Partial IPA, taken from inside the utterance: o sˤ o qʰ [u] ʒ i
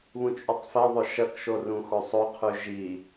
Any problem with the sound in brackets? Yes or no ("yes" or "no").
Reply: yes